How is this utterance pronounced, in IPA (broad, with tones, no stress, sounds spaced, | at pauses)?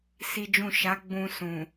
s i˦ d͡ʒ ũ˦˨ ʃ a˨˦ ɡ͡b ũ˧ s ũ˨